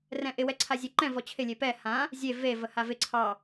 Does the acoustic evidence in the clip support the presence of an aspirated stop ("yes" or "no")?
yes